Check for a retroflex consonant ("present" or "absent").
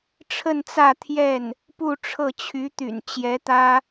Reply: present